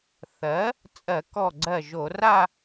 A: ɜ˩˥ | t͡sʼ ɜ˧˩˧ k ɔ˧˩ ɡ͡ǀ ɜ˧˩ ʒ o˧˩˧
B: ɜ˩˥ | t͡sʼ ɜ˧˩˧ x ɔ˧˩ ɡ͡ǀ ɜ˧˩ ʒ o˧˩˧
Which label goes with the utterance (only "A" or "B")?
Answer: A